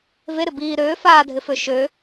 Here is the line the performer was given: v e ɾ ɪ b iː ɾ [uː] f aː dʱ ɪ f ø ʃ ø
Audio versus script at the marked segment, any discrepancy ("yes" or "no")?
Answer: yes